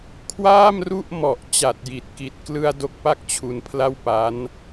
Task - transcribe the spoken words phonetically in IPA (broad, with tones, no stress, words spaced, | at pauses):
kʰwaː˥˩mru˥˩ʔmɔ˨˩ʔ t͡ɕa˨˩t̚ji˨˩t̚ki˨˩t̚klɯ˧a̯ do˦˥k̚pa˥˩k̚t͡ɕʰu˧npʰla˥˩w pa˦˥n